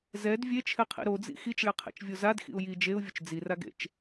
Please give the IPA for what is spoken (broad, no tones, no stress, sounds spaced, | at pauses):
z ɛ d vʲ e t͡ʃʰ ɛ qʰ ḭ ɾ o d͡z ḭ x i t͡ʃ ɭ e qʰ ḛ t͡ʃ vʲ o z a d x ḭ ʊ̯ j i d͡ʒ e ʊ̯ vʲ ʊ t͡ʃ d͡z i r a ɡ ḛ t͡ʃ